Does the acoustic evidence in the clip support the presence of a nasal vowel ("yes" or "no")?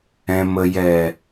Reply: yes